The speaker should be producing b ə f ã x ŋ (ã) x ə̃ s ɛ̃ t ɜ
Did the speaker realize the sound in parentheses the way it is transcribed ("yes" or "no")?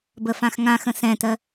yes